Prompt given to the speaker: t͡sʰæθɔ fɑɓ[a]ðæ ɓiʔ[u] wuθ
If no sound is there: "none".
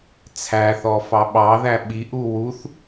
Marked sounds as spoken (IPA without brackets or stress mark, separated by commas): ɑ, u